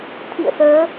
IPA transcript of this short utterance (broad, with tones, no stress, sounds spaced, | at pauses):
t̪ʰ ḭ˧˨ ə̯ s əː˨˦